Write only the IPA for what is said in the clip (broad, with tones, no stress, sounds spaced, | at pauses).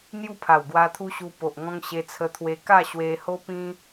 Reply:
n̪ j u˥˧ pʰ a˨˩ w ɡ w a˧ t̪ʰ u˦ ɕ u˧ p o˨ ʔ ŋ ɔ̃˧ ŋ ɕ e˧ t͡sʰ ə˧ t̪ʰ w e˧ k a˥˧ ɕ w e˧ h o˦ p ĩ˦